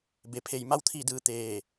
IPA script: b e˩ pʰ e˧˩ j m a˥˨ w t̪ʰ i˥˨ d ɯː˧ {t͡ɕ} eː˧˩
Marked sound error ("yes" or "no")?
yes